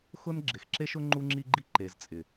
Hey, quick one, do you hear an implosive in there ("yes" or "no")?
no